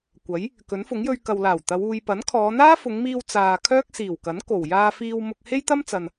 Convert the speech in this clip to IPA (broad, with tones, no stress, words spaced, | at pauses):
kʷɐ˨˥j | kɵ˨˥nfʊ˨˥ŋjɵ˧ɥ kɐ˨wlaː˨˩w t̪ɐ˨˧w uː˨j pɐ˨˥nkʰɔː˨˧n̪aː˥ fʊ˨˧ŋmiː˧w t͡saː˨ kʰœː˥k̚siː˨˩wkɐ˨˥n ko˨˩w jaː˧fiː˧w mʊ˧k̚he˥jt̪ɐ˥mt͡sɐ˨n